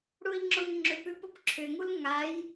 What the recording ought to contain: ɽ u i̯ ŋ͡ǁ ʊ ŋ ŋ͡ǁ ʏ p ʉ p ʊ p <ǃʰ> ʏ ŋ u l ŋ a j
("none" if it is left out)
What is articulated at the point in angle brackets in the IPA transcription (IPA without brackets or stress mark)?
ǁʰ